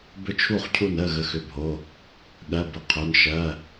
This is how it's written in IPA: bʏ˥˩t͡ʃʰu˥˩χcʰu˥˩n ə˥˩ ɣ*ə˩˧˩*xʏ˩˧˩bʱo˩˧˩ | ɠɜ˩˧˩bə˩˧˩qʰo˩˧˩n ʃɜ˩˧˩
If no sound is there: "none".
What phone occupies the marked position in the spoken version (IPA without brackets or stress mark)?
ə˩˧˩